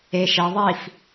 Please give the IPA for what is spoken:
e ʃ e ðˤ i f

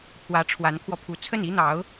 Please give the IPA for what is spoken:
pʰ w ä˧˥ ʈ͡ʂʰ w a˧˥ n kʰ w ɔ˧ pʰ u˧˥ t͡sʰ ə˥˩ n i˥ n̪ ɑ˧˥ ʊ̯

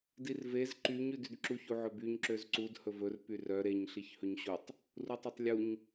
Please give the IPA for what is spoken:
d i r v e z ǃ y ɲ ʉ d y d ǁ u ç u ʕ ɵ b y ɲ ǁ ø z ǀ u d h ɵ v ɵ r p y r œ ɾ e ɲ ɬ i ç h ɵ ɲ ɕ u tˤ | r u tˤ e tˤ lʲ u ɲ

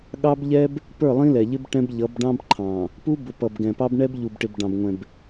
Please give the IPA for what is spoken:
ɠ ɑ˦ b ʎ ɛ˦ b | p ə˞˦˨ lˠ ĩ˦ l ɛ˨ ʎ ɪ˦ b ʈ ɛ̃˦ b ʎ ʌ˨˦ b ɖ ɑ̃˦ b ǃʰ ɑ̃˨ | p u˦ b ʊ˨ p ʌ˨ b ɡ ɛ̃˨ p ɑ˦ b ɳ ɛ˦ b ʎ u˨ b ʈ ɪ˨ b ɖ ɑ̃˨ b ŋʷ ɛ̃˨ b

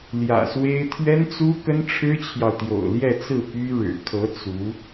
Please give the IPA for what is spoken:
l j ä̰˨˩ s w e˥ ɪ̯ t̪ʰ ɥ ɛ˥ n t͡s u˥ k ə˥ n ʈ͡ʂʰ ɻ̩˥ t͡ɕʰ j ɑ˨ ʊ̯ t̪ j o̰˨˩ ʊ̯ l j ɛ˥˧ t͡s ɹ̩˥˩ p y˥ ɻ ɻ̩˨˩ kʰ ɤ˧˥ t͡s u˧˥

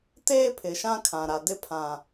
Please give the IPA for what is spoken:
t eː˦ pʰ ɪ˨ ʃ ã˦ kʰ ã˨ ɾ a˨ d ɪ˦ pʰ ã˨

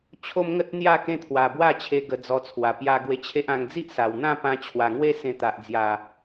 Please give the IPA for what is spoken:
t͡ɕʰ o˦ m ŋ ə˦ t̚ n̪ j a˥˧ k ẽ˦ t̪ʰ w a˨˩ b w a˥˧ t͡ɕʰ e˧ ɡ ə˧ d͡z ɔ˧ t͡sʰ w a˨˩ p j a˧ ɡ w e˧ t͡ɕʰ e˦ ʔ ã˧ ŋ d͡z i˦ ʔ s a˨˩ w n̪ ã˥˧ p ã˧ t͡ɕʰ w a˨˩ ŋ w e˦ s ẽ˧ t̪ a˨ ʔ d͡z j a˨˩

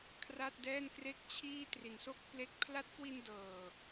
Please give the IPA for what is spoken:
kʰ r a˥˩ t̚ d ɛː˥˩ n k r e˥˩ k̚ t͡ɕʰ iː˥˩ t r i˨˩ n s o˥˩ k̚ p l e˦˥ k̚ pʰ l a˦˥ t̚ k w i˧ n d ɤː˨˩

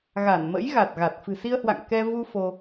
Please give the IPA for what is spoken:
ɣ a˧˩ n m ə̰˧˥ j ɣ a˨˩ t̚ ɣ a˨˩ t̚ f ɨ̤˨˩ s i˧ ə̯ h w a̰˧˨ ŋ k ɛ˧ v u˧ f o˧

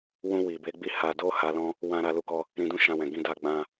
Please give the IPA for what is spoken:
w ũ˧ w i˨ b e˨˦ ɡ͡b i˧ h a˨ d o˧ h a˧ l ɔ̃˦ | w ã˦ ɾ a˧ l u˦ k ɔ˦ | ɾ ĩ˧ d ũ˦ ʃ ã˧ w ɛ̃˨ ɡ ĩ˧ d a˧ ɡ͡b ã˧

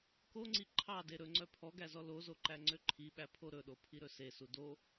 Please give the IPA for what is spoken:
k o ŋ͡ǀ i ǃʰ ɑ d e ɾ ɵ ŋ͡ǀ œ pʰ ɔ ɡ æ z ɔ l o z o ǃ æ ŋ͡ǀ ø ǃʰ i ɓ æ pʰ o ɾ ɵ ɗ o pʰ i ɾ ɵ s e s u d o

